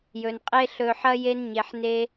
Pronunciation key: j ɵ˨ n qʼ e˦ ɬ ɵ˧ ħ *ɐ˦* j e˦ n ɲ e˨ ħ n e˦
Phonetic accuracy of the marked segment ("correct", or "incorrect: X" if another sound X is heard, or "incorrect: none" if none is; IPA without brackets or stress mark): correct